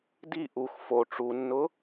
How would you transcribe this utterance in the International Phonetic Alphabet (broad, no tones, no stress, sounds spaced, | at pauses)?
d i ʔ u x f o ʈ͡ʂ u nː ʊ